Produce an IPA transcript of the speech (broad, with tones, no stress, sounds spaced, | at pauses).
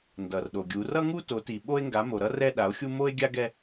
n d ʌ˨ r ɗ o˨ ɡʲ u˨˦ r ʌ˦ ŋ u˦ t o˨˦ t i˨ ɓ o˦ e̯ ŋ ɡ a˨˦ m o˨ ɾ ʌ˦ r ɛ˦ ɗ a˨˦ o̯ xʲ u˦ m o˦ e̯ ɡʲ a˦ ɡ ɛ˦